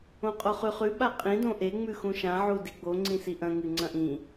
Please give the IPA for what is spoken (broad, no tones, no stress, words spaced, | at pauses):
õqʼoχʉχʉ ɓaqʼĩ dõʔe ŋ͡mʉxũʃã ʕudiɡ͡bo ŋ͡ǀĩsiʔɐ̃ ŋɨŋ͡ǀɐ̃ʔĩ